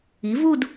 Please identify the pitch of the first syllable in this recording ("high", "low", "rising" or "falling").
rising